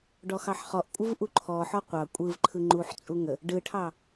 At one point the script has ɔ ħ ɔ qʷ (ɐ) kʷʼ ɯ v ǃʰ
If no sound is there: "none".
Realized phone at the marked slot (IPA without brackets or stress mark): ɑ